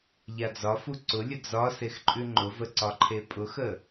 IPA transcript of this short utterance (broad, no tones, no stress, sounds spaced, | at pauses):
ʎ a d͡z ɒ f u ǀ ʊ lʲ ə d͡z ɒ s e x ǃʼ ʉ ŋ͡ǃ ʊ v ə ǀ ɒ ǃʰ e pʼ ʊ x ə